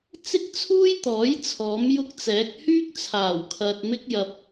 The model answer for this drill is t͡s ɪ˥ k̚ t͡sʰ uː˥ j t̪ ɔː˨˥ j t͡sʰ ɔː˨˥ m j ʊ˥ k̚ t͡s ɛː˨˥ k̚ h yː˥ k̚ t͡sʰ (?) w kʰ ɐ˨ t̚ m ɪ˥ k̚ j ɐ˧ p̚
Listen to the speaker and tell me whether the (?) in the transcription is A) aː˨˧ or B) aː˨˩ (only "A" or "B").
B